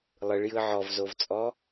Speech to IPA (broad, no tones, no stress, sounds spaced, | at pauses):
lˠ ɯ ɭ j ɯ ʕ ɔ v z o v t͡sʼ ɔ